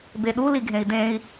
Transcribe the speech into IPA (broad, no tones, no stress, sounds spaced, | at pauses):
b e ɗ u l i ɡʱ ẽ i̯ d ẽ i̯